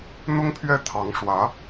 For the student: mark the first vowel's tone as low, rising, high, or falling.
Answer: high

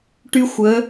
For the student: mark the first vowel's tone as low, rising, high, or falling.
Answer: high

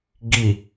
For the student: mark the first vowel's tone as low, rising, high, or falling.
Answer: low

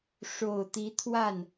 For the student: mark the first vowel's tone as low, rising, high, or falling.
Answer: low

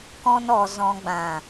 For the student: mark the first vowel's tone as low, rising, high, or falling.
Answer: high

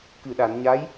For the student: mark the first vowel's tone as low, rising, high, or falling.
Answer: low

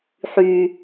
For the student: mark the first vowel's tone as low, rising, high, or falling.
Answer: low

